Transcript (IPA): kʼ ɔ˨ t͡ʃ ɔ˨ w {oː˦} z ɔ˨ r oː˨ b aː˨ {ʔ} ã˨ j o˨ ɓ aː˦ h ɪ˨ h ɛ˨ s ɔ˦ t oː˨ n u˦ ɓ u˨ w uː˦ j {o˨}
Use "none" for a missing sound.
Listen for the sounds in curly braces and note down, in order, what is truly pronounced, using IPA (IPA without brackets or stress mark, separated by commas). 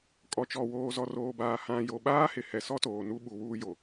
oː˨, h, o˨